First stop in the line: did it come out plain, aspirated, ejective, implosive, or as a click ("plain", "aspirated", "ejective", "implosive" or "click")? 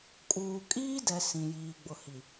ejective